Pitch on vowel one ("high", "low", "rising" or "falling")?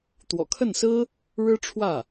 low